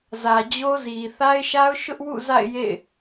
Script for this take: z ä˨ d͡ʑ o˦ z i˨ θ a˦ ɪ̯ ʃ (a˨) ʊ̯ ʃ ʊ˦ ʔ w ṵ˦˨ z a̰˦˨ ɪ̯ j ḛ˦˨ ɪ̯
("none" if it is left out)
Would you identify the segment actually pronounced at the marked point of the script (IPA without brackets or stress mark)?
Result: a˦